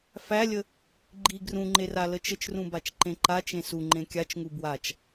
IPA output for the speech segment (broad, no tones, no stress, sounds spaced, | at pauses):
f æ lʲ ə | ɡ͡ǃ i ɡ r ũ ŋ͡ǃ e r a l ə t͡ʃ ə t͡ʃ r ũ b a t͡ʃ ǃ ẽ ǃ a t͡ʃ ẽ s u ŋ͡ǃ ẽ kʲ a t͡ʃ ŋ u b w a t͡ʃ